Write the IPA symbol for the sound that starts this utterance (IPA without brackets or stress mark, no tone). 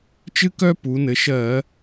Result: t͡ʃ